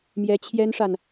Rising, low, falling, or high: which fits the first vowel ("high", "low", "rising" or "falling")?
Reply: rising